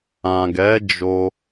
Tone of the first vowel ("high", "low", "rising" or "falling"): low